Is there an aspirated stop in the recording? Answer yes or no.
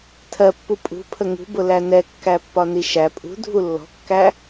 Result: yes